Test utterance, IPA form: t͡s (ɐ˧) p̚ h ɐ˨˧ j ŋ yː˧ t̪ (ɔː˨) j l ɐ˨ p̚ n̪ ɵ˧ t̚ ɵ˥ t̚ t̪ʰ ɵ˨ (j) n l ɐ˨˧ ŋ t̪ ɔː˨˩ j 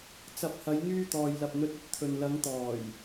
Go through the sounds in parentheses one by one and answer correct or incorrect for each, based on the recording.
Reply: incorrect: ɐ˨˥, correct, incorrect: none

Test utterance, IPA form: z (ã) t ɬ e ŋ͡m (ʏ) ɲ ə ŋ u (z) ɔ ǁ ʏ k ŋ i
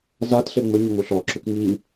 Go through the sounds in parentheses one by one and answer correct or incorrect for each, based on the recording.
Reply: incorrect: a, correct, incorrect: ɬ

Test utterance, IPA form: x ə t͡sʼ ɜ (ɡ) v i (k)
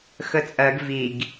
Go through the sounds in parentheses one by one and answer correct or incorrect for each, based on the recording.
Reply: correct, incorrect: ɡ

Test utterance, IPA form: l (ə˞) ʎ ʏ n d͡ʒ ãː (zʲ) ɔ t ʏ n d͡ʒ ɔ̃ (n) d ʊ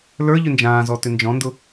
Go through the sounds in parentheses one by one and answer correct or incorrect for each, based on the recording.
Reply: correct, incorrect: z, correct

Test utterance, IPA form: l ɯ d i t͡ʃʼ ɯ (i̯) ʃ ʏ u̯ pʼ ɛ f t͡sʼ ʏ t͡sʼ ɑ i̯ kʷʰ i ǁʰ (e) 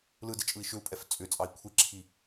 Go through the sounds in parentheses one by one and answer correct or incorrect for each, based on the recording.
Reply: correct, incorrect: i

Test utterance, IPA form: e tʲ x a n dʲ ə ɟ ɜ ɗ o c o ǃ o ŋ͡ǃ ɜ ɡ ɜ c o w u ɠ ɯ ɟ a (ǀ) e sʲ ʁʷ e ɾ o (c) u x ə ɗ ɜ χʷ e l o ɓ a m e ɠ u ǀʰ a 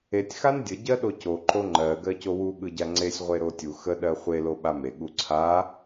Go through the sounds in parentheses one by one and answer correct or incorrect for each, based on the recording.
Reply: incorrect: ŋ͡ǀ, incorrect: tʲ

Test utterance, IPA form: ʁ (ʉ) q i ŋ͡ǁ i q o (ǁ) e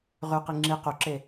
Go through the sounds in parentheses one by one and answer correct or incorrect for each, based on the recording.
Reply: correct, correct

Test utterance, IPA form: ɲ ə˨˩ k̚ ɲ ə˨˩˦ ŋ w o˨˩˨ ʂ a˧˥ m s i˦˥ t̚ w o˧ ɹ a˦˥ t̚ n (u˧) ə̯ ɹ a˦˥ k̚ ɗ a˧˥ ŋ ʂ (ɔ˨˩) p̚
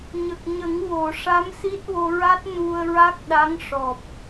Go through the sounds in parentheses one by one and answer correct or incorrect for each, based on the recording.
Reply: correct, correct

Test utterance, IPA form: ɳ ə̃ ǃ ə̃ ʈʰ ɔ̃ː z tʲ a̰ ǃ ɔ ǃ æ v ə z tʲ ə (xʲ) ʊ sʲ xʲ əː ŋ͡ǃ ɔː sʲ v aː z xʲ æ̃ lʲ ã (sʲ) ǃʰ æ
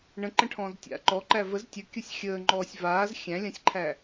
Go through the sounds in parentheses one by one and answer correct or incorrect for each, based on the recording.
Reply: incorrect: kʲ, correct

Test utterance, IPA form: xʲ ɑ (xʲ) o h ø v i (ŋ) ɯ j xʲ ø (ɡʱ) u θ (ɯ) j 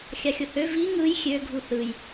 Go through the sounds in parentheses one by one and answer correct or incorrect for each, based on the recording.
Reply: correct, correct, correct, correct

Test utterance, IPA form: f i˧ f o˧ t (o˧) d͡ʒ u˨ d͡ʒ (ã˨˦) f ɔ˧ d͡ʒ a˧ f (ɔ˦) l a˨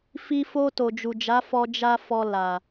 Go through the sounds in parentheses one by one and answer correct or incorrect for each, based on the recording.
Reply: incorrect: o˨, incorrect: a˨˦, incorrect: ɔ˨

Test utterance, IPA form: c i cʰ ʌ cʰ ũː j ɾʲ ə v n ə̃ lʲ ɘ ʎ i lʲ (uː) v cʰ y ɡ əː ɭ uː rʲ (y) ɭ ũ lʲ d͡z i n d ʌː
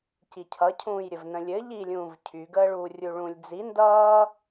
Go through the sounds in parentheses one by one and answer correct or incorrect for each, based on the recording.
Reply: incorrect: ũː, incorrect: u

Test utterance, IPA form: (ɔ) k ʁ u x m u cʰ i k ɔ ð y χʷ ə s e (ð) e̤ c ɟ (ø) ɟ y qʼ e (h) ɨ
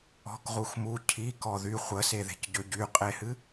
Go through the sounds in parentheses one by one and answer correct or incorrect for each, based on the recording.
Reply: incorrect: ɔ̤, correct, correct, correct

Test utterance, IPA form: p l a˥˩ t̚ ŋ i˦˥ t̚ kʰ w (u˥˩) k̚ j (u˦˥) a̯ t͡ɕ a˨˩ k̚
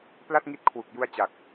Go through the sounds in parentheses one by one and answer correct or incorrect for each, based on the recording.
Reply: incorrect: u˨˩, incorrect: u˧

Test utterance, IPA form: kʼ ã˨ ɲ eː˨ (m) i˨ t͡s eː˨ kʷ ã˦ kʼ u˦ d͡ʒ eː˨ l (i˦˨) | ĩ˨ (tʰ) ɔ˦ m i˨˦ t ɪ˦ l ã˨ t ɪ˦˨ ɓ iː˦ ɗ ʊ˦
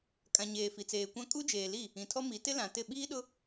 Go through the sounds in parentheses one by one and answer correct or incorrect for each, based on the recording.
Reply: incorrect: f, correct, correct

